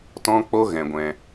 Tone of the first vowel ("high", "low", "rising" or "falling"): high